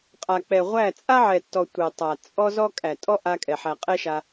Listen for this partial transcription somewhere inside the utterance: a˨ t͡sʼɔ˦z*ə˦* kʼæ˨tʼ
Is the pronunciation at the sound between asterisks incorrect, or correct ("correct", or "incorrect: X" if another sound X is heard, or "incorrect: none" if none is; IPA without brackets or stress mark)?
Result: incorrect: ɔ˦